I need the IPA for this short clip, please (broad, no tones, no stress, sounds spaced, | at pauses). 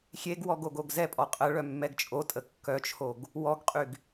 xʲ e ɡ w ɔ ɡ o ɡ o ɡ z ɛ pʼ ɔ qʼ ə ɭ œ mː ɛ ɡ t͡ʃʼ o tʼ ə kː œ t͡ʃʰ o ɡ | w ɔ ɡ qʼ y ɡ